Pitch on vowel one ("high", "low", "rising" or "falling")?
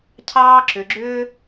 high